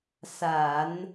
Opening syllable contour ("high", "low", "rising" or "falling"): low